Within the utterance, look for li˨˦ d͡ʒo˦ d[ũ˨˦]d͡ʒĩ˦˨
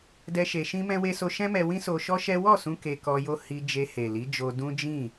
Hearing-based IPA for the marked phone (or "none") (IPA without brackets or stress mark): ũ˦